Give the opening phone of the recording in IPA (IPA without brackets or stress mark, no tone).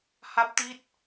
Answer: h